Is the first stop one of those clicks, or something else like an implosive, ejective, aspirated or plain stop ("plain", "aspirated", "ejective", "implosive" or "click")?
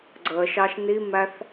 click